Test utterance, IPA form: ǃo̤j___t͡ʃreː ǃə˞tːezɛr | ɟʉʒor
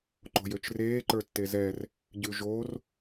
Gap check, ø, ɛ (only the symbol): ø